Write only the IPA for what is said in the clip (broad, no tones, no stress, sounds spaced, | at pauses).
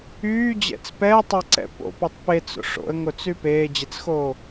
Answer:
yː d͡ʑ ɛ̰ t͡s p ɛː tˤ ɛ ǀ ɛ̰ p o̰ p y tˤ p e t͡s o̰ ʂ o̰ ə̯ ŋ o t͡s y p eː d͡ʑ e t͡s x oː